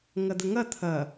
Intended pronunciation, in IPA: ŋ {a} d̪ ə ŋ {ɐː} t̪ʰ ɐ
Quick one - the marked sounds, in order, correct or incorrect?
incorrect: ɐ, incorrect: ɐ

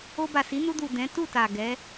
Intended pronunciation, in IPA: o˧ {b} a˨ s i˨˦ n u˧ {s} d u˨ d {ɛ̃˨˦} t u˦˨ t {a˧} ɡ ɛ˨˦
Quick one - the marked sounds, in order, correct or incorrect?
correct, incorrect: none, correct, incorrect: a˨

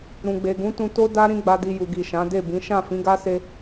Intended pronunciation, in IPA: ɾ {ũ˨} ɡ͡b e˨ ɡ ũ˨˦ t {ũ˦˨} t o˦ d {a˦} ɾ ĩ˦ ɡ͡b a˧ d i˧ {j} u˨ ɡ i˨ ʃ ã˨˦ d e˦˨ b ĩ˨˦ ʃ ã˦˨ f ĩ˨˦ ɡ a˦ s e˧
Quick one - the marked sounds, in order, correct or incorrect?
correct, incorrect: ũ˧, correct, correct

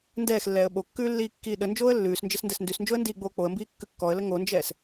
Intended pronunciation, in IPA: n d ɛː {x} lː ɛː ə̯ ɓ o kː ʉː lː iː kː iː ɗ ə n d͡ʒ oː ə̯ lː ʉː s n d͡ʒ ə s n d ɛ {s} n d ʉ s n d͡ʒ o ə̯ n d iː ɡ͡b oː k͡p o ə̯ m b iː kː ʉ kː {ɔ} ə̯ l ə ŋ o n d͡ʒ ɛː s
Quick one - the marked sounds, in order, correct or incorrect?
correct, correct, correct

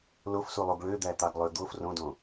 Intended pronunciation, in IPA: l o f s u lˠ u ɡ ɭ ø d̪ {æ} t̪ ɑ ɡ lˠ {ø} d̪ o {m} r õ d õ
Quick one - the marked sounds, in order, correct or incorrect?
correct, correct, incorrect: f

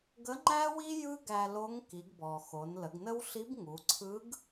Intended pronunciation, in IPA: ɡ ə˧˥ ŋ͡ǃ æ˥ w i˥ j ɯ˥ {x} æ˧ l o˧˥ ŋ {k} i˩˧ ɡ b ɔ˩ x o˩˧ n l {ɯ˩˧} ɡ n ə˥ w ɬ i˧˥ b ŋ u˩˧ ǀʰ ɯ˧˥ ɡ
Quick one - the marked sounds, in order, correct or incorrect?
incorrect: ɡ, correct, incorrect: ə˩˧

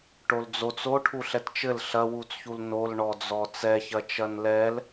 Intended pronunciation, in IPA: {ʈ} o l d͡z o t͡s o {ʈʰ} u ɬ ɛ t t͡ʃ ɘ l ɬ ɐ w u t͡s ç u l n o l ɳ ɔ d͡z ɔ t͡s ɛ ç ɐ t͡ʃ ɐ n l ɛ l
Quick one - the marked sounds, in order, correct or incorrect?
correct, correct

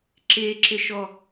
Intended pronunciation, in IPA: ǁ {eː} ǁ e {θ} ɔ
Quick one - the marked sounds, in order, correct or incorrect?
correct, incorrect: ʃ

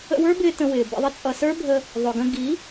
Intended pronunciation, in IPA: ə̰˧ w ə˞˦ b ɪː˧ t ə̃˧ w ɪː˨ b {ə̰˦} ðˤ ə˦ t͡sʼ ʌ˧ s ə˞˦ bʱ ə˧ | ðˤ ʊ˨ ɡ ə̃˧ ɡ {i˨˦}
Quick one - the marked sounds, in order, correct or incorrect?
incorrect: ə̰˧, correct

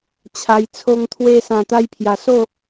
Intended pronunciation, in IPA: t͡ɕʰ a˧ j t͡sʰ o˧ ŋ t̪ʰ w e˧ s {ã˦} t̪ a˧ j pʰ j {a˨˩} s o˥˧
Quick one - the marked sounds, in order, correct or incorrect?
incorrect: ã˨˩, correct

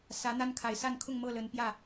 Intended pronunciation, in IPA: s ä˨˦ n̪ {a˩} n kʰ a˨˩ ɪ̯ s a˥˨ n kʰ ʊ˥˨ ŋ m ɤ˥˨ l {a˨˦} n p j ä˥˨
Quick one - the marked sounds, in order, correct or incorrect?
incorrect: a˦, incorrect: ə˨˦

